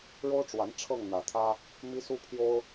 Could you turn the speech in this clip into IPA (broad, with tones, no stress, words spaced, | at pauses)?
ɻo˦ʊ̯ʈ͡ʂwa˨˦n ʈ͡ʂʰɤ˥˨ŋn̪ä˨˩t̪ʰä˦ | mi˦su˦pʰjo˦ʊ̯